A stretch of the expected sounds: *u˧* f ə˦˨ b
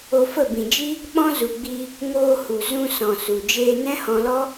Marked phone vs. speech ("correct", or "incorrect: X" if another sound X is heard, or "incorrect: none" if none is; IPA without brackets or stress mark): incorrect: o˧